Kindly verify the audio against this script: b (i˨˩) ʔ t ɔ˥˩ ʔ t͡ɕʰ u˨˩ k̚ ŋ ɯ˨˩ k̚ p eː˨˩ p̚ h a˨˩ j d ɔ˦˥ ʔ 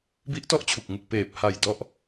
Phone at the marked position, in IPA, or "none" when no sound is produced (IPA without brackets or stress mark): i˦˥